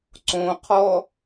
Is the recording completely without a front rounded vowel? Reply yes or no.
yes